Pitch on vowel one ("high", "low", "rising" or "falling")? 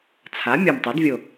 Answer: rising